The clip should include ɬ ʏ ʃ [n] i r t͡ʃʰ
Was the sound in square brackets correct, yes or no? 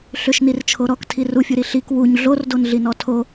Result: yes